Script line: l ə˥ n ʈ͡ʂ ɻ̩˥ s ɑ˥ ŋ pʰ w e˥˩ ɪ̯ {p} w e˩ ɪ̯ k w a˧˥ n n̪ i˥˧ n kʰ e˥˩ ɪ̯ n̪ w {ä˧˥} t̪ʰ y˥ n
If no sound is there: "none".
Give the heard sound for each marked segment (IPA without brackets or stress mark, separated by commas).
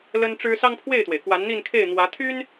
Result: t̪, ä˧˥